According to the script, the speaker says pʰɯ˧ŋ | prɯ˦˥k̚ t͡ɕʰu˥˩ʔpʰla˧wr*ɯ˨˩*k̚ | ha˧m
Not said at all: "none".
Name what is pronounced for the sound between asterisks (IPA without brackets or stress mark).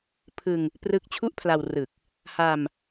ɯ˨˩